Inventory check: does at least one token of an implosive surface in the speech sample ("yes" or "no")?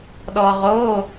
yes